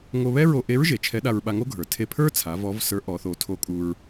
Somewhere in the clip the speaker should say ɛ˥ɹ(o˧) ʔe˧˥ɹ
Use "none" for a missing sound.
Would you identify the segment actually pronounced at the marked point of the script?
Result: o˧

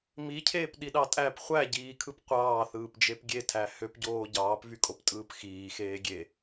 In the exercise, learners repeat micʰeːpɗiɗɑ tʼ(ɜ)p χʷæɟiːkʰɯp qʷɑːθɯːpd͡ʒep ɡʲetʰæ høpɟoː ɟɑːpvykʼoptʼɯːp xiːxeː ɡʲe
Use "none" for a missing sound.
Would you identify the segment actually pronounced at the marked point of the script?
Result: æ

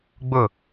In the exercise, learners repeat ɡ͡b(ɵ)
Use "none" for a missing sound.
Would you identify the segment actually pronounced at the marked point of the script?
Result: ʊ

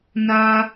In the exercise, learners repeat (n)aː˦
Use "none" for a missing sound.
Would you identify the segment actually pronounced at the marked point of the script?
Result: n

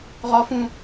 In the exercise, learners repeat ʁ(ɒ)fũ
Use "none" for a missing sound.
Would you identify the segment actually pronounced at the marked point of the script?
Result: ɒ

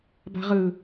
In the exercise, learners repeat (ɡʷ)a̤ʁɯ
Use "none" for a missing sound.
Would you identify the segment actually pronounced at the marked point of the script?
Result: b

